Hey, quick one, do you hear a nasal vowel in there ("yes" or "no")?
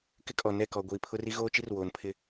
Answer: no